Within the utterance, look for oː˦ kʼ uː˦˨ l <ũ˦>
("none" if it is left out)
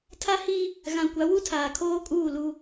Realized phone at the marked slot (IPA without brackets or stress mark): u˦